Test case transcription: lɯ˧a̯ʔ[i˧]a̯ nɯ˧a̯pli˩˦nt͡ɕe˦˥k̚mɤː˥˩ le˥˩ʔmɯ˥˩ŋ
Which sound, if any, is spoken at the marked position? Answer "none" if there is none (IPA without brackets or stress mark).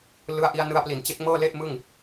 i˧